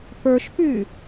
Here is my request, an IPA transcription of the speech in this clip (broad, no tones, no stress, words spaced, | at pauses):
pə˞ʃpy